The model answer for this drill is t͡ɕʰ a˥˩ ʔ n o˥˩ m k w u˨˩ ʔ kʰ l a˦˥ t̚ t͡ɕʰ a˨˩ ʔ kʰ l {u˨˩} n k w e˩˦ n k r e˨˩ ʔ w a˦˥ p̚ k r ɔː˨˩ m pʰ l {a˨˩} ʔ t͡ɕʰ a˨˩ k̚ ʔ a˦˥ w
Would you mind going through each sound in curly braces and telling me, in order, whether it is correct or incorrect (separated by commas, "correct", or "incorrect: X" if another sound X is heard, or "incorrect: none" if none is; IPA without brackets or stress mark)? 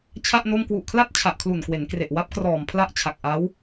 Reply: correct, incorrect: a˥˩